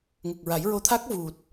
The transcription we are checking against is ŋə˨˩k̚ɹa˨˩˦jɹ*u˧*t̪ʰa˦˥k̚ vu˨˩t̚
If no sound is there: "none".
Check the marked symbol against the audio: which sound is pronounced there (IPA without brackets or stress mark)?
o˧